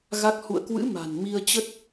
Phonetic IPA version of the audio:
ɣ a˦˥ k̚ h ṵ˧˨ ə̯ k w ɨ̰˧˥ m a̤˨˩ n m i˧ ə̯ t͡ɕ ə˦˥ t̚

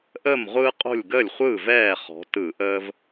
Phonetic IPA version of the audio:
ʔ əː˥˩ m ʁʷ ɯː˦ qʼ o̤˥˩ lʲ ɡ əː˥˩ lʲ χʷ ɯː˥˩ v ɛː˥˩ χ ɔ̤˩˧ t ɯ˧˩˧ ʔ əː˦ v

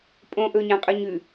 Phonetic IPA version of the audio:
pʼ õ ʔ ɵ ɲ ã qʼ ʉ ɲ ʉ

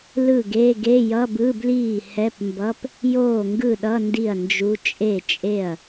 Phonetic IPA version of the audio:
l ɯ˥˩ ɡ e˧˥˧ ɡ e˧˥˧ j ʌ˧˥˧ b ɯ˧˥˧ b l iː˥˩ h ɛ˧˥˧ p m b ʌ˧˥˧ p | j oː˥˩ ŋ ɡ ɯ˥˩ ɗ ʌ˧˥˧ n d i˥˩ ɐ̯ n d͡ʒ u˧˥˧ t͡ʃʼ e˥˩ t͡ʃʼ e˥˩ ɐ̯

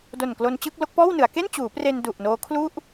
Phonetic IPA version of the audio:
d o˨˩ n k l o˧ n t͡ɕ ɯ˥˩ k̚ l o˦˥ k̚ p ɔː˥˩ w n ɯ˩˦ a̯ k e˥˩ n t͡ɕ uː˩˦ p r e˧ n d u˨˩ ʔ n oː˦˥ kʰ l u˥˩ ʔ

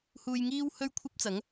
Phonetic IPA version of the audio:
h uː˧ j ŋ iː˥ w h ɵ˥ ɥ kʷʰ ɐ˥ p̚ t͡s ɐ˨˥ ŋ

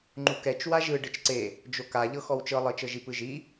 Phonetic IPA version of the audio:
ŋ͡ǃ u k ɛ t͡ʃ w a ʒ ɯ ɖ ɯ t͡ʃ ǀ e | d͡ʒ o k a ʎ ɤ x ɔ w t͡ʃ ɤ lˠ ɤ t͡ʃ ɤ ʒ i p ɯ ʒ i

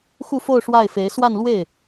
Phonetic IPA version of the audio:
x u˥˧ f o˥˧ ʊ̯ ʂ w a˥˩ ɪ̯ f e˧˥ ɪ̯ s w a˥˧ n l w e˥˩ ɪ̯

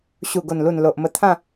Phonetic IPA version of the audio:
ɕ u˨˩ ɡ o˨˩ n l u˨˩ n l o˨ ʔ m ə˧ t̪ʰ ã˥˧

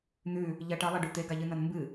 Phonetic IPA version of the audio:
n̪ ʉ | ʎ ɐ ʈ ɐ lˠ e ɖ u t̪ e ɡ a ʎ ɨ n ɐ n m b ɨ

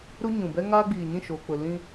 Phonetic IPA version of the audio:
ɾ u˦ ɲ ũ˨ b ɛ˦ ŋ aː˦ ɡ͡b iː˨ ɲ ĩ˦˨ ʃ o˨ k͡p ʊ˨ l ĩ˦

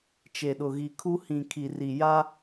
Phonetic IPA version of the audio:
t͡ʃ e˨ ɗ ʊ˨ ɣ i˨ kʰ u˦ h ĩ˨ kʰ i˨ r i˨ j a˦

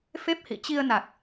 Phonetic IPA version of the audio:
f e˦˥ p̚ h ḭ˧˨ t͡ɕ i˧ ə̯ n a˨˩ k̚

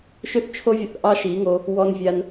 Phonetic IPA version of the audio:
ʃ ʏ˦ θ t͡ʃʰ o˦ vʲ ə˧ θ ʔ ɑ˦ ʃ i˨˦ ŋ o˧ | w ɔ˦ n vʲ a˦ n

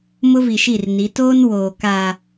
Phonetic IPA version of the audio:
m ʊ˦ v i˨ ʃ i˦˨ r n i˨˦ t oː˦ n w oː˨ k a˨

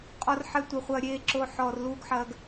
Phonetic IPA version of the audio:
qʼ ɔ˦ r ħ ɛ˦ tʷ ɐ˧ χʷ ɐː˧ ɾʲ eː˧ ǁ o˧ ħ ɔː˧ r l uː˦ ɡ ħ ɐː˦ ɡ

